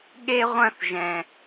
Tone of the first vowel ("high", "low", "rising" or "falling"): high